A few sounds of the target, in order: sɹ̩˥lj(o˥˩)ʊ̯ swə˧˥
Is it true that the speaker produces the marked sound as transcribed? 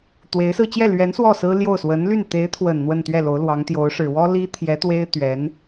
yes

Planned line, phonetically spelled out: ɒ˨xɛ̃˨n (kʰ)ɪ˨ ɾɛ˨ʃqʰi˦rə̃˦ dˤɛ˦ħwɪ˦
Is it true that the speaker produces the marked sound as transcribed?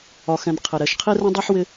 no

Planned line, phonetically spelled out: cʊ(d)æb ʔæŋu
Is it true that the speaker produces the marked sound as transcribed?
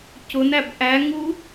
no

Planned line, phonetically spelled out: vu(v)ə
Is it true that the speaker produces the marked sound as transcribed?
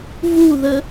no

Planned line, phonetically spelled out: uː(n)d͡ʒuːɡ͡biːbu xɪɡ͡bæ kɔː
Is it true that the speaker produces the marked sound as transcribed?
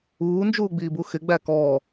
yes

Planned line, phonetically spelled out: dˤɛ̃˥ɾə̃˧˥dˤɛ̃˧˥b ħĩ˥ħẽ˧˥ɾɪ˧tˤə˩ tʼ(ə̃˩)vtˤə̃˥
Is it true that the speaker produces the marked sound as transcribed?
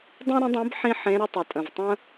yes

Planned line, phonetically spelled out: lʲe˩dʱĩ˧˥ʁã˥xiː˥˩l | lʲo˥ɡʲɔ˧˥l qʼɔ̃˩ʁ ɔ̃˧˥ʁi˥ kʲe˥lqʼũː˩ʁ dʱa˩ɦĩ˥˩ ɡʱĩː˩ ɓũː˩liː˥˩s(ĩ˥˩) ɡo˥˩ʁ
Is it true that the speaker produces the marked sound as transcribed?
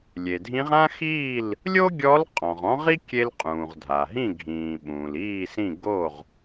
yes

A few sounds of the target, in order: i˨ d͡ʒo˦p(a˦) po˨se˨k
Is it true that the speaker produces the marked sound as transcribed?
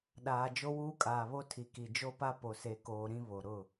yes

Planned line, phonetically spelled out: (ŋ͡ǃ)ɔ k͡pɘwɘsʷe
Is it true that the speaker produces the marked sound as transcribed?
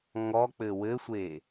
no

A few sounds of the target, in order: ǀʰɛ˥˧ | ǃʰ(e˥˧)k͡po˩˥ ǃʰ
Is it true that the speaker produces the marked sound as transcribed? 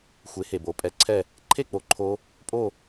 yes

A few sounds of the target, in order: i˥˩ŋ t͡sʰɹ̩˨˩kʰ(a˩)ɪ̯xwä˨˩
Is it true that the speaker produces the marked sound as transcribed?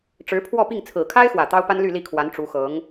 no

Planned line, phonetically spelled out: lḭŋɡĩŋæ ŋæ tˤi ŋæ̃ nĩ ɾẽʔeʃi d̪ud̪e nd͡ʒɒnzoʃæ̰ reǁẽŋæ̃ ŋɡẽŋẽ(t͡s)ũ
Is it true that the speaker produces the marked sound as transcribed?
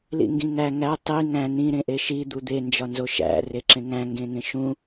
no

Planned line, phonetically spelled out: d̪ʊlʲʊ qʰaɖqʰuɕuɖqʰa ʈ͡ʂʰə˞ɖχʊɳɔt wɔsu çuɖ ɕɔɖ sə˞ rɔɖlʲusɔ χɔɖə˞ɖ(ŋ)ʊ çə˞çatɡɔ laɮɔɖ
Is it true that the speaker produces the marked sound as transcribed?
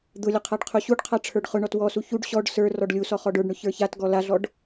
no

